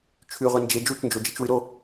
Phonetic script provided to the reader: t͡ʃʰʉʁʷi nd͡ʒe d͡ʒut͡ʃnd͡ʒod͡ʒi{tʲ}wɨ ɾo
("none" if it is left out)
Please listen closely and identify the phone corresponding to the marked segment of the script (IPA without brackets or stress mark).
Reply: t͡ʃ